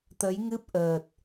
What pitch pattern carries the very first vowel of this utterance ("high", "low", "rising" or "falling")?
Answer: rising